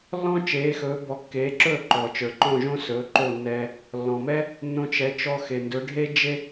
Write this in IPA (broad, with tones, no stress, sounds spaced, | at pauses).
lː ɔ̃˥ t͡ʃ eː˩˥ x ɵː˩˥ b ɔ˩˥ kː eː˩˥ ǁ ɵː˥˩ ǃ ɔ˩ t͡ʃ ə˞˩ ǃ ɔ̃˥˩ ʒ õ˥ s ɵː˩˥ ǃ o˥˩ nː ɛː˧ | lː ɔ̃˩ m ɛ˥ | nː õ˧ t͡ʃ ɛ˩˥ t͡ʃ ɔ˧ x e˩ n d ɵ˩˥ ɖʱ e˥ d͡ʒ e˥